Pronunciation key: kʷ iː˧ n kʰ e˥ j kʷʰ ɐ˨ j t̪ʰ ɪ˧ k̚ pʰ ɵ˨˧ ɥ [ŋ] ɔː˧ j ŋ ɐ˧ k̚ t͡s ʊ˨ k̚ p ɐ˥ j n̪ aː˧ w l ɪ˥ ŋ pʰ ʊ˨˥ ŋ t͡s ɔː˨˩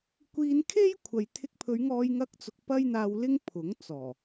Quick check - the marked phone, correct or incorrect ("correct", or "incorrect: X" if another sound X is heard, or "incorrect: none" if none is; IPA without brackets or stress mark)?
correct